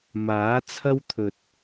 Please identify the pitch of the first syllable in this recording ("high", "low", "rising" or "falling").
rising